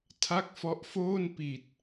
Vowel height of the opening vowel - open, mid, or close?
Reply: open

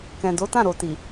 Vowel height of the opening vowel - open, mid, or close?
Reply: mid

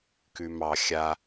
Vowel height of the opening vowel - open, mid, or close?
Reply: close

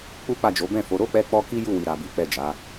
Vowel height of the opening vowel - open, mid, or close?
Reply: close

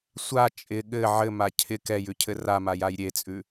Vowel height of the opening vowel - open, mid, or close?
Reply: open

